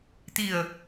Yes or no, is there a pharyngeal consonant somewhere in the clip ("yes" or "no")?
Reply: no